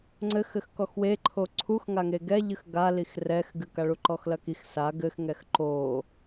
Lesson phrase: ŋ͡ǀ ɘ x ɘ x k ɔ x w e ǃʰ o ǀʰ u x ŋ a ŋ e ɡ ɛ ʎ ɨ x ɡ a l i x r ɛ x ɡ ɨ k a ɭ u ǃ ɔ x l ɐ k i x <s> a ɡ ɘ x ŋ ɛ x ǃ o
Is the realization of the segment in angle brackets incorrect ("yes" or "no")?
no